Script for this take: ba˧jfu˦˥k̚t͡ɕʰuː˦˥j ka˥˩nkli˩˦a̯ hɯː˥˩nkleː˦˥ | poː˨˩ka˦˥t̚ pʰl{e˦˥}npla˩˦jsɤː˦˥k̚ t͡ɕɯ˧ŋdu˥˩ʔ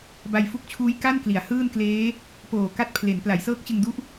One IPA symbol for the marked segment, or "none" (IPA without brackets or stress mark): e˩˦